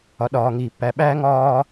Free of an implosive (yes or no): no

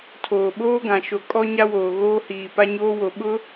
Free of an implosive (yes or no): no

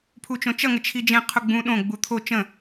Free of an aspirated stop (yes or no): no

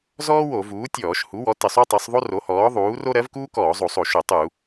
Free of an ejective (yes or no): yes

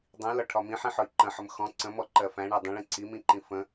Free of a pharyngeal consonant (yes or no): no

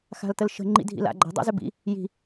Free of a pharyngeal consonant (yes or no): yes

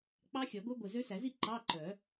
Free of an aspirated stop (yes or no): yes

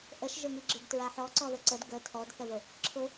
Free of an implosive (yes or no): yes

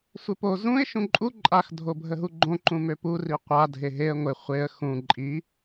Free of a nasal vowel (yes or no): no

